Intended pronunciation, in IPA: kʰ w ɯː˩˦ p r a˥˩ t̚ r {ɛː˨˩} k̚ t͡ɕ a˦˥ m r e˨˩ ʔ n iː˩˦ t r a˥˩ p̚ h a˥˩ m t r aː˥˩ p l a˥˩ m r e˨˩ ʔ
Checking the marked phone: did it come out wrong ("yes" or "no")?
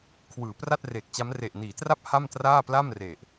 yes